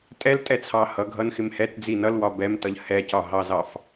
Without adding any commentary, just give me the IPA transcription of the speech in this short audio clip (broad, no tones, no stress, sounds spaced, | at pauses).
tʼ ɛ l tʼ ɛ t͡sʰ ɑ h ʌ ɡʱ ʌ n x ɪ m h ɛ t d͡z i n ʌ l w ɒ b ɛ m t ʌ ʎ h ɛ c ɒ ɦ ɑ z ɑ f